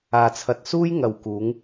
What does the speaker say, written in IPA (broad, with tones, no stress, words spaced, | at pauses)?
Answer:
aː˨t͡sʰɐ˨t̚ suː˥j ŋɐ˨wkuː˨˧ŋ